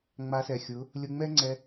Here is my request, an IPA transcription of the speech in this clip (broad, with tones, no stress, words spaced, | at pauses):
ŋ͡ma˧sɛ˨xʲʊ˨˦ | lʲʊ˧ŋ͡mɛ˦ ŋ͡ǀɛ˧